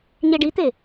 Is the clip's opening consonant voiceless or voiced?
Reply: voiced